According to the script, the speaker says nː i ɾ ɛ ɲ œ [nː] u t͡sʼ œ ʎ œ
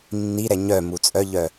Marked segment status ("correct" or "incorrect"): incorrect